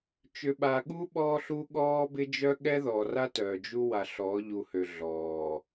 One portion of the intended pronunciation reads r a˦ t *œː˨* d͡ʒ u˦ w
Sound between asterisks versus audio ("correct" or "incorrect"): correct